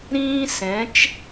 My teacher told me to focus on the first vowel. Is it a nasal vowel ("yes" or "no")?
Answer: yes